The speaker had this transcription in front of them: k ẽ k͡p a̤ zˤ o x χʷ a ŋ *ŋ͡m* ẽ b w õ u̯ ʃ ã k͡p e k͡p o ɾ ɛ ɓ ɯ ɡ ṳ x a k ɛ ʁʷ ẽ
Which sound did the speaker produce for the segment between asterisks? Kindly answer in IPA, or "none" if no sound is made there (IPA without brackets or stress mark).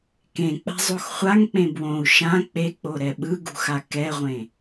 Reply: k͡p